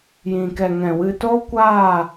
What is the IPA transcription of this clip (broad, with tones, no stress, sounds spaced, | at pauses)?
j ĩ˨ k ɛ˨ ŋ ɛ̃˨ w ɨ˧ t o˦ kʷ aː˦˨